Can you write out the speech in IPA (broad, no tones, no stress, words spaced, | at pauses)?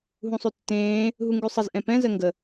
ɦũsˤʉtːẽː | ɦuŋɡʉsˤəz ʔɛ̃pɛ̃ zɜŋɡə